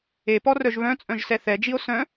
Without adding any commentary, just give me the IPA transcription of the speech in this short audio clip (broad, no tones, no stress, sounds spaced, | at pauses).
e p ɔ r œ ʒ β œ̃ t͡sʼ œ̃ ʒ s ɛ θ ɛ d͡ʒ i o̯ s œ̃